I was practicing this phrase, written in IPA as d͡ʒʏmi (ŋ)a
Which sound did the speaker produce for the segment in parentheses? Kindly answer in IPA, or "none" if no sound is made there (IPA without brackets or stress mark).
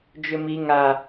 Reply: ŋ